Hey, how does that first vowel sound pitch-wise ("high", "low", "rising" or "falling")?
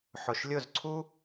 low